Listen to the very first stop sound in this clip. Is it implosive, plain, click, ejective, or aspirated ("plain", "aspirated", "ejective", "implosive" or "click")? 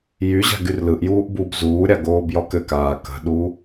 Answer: plain